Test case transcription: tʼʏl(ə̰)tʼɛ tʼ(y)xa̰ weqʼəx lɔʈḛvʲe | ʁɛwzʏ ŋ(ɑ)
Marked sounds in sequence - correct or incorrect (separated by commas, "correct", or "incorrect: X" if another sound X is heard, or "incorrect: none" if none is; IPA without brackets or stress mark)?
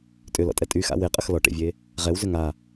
incorrect: ɔ̰, correct, incorrect: a